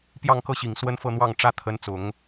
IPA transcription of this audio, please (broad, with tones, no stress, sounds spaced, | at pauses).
p j ɑ˥˧ ŋ k ɤ˥˩ ɕ i˨˩ ŋ s w ə˥ n f ɤ˥˧ n̪ w ɑ˥˩ ŋ ʈ͡ʂ ä˥ t̪ʰ ə˧˥ n t͡s ʊ˨˩˦ ŋ